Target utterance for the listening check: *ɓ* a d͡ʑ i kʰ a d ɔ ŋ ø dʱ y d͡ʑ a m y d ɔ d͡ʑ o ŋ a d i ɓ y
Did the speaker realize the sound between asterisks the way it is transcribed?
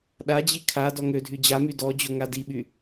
no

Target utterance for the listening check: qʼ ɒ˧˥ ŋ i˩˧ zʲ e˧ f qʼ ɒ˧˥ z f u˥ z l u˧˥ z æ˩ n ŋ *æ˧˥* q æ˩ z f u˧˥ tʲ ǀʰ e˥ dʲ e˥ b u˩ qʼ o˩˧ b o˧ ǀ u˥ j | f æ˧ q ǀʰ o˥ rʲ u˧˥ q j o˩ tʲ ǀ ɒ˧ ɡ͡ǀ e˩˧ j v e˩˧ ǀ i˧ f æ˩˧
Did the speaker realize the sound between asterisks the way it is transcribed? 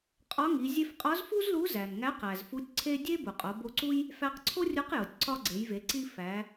yes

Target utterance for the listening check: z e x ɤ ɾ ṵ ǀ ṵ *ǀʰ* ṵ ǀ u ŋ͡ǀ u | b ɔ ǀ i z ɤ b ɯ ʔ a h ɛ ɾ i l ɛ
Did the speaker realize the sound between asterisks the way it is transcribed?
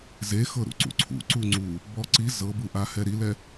yes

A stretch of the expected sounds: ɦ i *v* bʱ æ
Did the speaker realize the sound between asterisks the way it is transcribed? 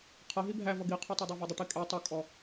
no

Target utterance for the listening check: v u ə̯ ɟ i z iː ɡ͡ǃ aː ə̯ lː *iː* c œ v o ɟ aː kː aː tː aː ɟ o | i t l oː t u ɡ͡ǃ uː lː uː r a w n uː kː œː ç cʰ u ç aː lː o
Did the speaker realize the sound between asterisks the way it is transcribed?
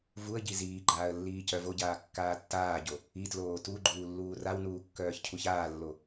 yes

